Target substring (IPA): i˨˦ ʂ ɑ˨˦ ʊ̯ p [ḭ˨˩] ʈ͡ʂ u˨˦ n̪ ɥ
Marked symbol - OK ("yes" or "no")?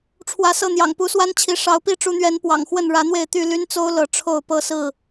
no